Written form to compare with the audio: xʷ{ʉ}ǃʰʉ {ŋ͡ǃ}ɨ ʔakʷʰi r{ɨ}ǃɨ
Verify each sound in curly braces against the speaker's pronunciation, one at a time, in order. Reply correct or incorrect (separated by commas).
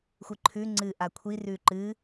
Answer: incorrect, incorrect, incorrect